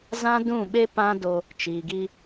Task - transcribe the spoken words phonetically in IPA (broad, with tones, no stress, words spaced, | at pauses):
zã˦dũ˦˨ɓe˦ pã˦do˧ | t͡ʃiː˨ɡi˧